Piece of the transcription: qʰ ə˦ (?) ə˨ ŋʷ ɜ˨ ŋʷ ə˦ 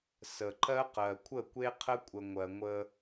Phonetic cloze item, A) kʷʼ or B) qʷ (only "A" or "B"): A